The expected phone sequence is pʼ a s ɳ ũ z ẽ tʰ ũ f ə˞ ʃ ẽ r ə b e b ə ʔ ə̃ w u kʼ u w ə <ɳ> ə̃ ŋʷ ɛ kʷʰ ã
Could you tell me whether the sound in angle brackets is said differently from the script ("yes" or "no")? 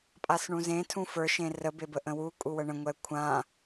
no